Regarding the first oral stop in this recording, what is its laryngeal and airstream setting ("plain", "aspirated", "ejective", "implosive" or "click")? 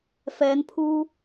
aspirated